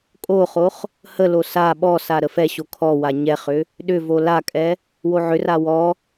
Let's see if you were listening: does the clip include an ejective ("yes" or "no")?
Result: yes